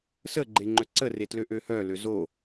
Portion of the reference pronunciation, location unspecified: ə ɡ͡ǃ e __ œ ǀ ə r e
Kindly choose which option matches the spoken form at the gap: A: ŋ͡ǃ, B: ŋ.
A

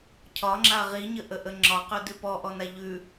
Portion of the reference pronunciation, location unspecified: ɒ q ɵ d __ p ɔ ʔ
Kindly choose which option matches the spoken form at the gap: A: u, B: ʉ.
B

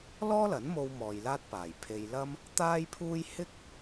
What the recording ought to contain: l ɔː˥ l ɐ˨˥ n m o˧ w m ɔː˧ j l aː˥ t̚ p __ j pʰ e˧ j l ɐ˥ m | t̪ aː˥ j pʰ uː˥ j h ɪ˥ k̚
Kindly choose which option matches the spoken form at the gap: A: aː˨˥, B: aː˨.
B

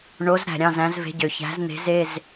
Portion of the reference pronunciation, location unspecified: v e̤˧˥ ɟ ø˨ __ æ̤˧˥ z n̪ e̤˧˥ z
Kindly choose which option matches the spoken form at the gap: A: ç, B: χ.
A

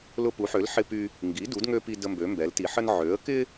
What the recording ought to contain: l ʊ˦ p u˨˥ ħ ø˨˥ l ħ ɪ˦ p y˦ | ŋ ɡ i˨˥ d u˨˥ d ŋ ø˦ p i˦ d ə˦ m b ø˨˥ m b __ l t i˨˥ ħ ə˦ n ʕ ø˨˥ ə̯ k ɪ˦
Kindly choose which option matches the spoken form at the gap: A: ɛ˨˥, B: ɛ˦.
A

